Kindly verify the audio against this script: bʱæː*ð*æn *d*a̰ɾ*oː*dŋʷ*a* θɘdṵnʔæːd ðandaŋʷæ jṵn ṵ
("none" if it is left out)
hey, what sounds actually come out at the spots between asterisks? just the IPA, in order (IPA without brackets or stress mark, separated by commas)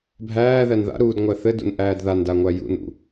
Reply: ð, ð, uː, æ